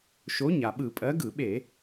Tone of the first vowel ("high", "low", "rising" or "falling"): rising